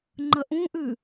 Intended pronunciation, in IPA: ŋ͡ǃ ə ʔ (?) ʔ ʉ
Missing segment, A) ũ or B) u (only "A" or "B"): A